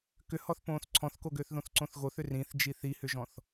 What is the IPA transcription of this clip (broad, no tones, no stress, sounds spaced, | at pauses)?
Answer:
k ʏ h ɔ θ p õː θ ǀʰ ɔ̃ θ k o ɡ ʏː θ ð õ θ ǀ õ θ ɣ o θ ʏ r ĩ θ d͡ʒ i θ i h ʏ ʒ ɔ̃ θ